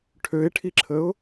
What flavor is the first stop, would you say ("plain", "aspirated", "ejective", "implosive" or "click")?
aspirated